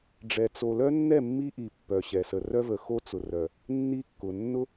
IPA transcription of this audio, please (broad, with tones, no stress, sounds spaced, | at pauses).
ɖ͡ʐ ɛ˨ t͡s o˨ l œ˦ nː ɛ˦˨ mː i˦ ʔ i˨ pː œ˨ ɕ ɛ˨ s ə˨ r œ˦ v ə˨ x o˦ t͡s ʊ˨ r œ˨ | nː i˦ kː ʊ˨ nː ʊ˦